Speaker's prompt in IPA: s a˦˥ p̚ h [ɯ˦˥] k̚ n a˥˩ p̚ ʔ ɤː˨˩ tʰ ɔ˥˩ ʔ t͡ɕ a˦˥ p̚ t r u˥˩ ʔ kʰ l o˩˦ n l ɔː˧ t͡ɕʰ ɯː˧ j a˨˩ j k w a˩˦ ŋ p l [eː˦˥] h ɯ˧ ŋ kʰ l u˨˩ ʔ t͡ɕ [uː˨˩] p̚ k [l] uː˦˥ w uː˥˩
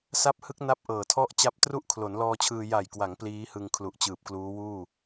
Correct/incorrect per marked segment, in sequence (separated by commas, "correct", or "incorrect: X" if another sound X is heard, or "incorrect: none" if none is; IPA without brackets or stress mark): correct, incorrect: iː˦˥, incorrect: ɯː˨˩, correct